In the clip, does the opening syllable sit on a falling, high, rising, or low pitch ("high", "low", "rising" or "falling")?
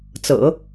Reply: low